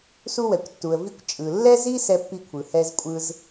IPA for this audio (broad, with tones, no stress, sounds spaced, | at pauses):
s u˥ w ɛ˩ kʷ tː u˩ ə̯ v i˥ kʷ t͡ʃʼ ɯ˩ lː ɛ˥ z i˥ s ɛ˥ pː i˥ kʷʰ ɯ˩ h ɛ˥ z kʷʼ ɯ˥ z